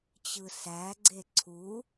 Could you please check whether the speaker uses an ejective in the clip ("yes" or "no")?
no